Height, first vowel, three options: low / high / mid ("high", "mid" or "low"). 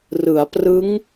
high